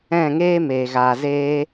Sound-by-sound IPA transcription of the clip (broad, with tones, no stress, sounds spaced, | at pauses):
ɛ̃˦˨ ŋ eː˦ m eː˨ ɣ aː˨ z eː˧